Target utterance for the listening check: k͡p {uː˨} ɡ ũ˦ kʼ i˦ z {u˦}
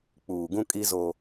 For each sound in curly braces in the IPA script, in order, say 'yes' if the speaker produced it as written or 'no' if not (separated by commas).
yes, no